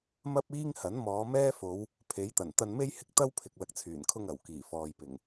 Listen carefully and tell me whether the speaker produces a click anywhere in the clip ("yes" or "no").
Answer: no